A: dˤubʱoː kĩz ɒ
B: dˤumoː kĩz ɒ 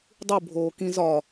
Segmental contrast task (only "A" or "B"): A